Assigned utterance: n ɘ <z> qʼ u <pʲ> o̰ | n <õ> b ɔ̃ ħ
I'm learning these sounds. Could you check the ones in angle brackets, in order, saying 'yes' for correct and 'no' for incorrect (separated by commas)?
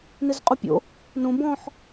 yes, yes, yes